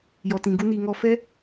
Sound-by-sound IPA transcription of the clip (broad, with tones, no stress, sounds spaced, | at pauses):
j ɔ˨ t ĩ˨ ɡ u˧ n iː˨ ŋ ɔ˧ f ɛ˦